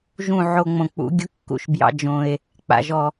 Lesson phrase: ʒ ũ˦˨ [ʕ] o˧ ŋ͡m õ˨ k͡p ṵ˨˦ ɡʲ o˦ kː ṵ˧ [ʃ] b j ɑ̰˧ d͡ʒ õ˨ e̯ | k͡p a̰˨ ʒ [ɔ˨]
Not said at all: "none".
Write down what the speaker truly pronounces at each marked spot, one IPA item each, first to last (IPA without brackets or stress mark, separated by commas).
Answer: ʕ, ʃ, ɔ˨